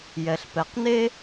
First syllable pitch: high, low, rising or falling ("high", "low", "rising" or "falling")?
low